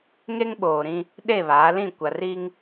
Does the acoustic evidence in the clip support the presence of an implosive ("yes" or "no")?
yes